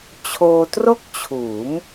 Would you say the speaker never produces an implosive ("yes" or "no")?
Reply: yes